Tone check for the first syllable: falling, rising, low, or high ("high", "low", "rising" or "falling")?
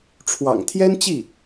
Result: low